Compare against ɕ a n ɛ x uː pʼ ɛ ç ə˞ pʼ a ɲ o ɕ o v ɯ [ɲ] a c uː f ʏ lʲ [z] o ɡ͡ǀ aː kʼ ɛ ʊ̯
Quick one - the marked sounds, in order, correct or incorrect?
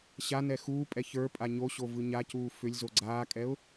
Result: correct, correct

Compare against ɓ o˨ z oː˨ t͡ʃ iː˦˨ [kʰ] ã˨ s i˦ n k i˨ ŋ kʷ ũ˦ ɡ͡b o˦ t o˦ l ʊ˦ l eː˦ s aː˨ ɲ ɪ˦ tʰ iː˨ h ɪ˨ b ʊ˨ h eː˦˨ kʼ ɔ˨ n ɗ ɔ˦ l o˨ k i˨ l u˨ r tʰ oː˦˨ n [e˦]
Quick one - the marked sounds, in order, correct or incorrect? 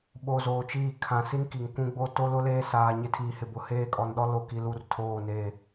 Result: correct, incorrect

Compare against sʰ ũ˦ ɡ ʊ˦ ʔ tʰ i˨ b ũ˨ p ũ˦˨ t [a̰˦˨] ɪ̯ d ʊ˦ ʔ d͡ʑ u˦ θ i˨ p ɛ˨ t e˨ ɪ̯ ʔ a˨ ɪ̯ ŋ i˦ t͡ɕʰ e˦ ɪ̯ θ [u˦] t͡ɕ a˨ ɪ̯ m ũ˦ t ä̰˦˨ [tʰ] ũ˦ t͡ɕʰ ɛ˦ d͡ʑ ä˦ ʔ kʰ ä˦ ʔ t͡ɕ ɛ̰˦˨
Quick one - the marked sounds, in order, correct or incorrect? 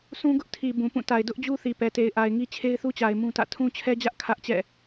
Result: incorrect, correct, correct

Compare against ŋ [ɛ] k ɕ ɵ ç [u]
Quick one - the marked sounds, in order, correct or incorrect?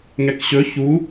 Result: correct, correct

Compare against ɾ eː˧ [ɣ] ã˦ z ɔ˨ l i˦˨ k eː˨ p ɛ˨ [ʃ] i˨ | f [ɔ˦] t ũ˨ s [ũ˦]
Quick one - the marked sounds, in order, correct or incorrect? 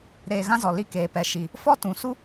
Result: correct, correct, correct, incorrect

